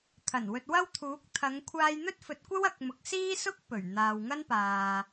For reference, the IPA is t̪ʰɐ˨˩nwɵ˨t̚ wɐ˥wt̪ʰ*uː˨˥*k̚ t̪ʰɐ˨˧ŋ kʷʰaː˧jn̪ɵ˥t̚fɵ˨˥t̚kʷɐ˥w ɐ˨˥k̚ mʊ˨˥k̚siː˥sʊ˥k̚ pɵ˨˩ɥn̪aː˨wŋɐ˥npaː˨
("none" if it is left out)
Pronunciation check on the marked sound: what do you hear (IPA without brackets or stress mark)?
uː˨˥